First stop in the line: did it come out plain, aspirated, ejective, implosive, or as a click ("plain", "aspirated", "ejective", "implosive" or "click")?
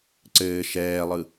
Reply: click